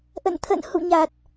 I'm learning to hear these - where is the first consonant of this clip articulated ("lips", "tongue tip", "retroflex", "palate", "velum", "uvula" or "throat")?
throat